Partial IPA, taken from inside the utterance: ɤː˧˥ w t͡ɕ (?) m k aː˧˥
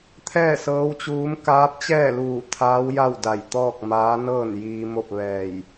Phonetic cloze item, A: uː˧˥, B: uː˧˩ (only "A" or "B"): A